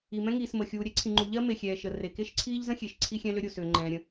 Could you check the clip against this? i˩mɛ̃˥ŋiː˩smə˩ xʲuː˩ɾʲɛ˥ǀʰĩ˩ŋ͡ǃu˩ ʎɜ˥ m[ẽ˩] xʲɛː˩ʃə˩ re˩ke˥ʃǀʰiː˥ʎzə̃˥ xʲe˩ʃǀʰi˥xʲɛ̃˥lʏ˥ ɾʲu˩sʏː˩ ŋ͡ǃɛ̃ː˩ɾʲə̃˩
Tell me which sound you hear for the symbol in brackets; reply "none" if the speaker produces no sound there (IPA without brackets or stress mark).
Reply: e˩